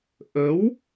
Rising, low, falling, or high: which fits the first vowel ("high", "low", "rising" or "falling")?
rising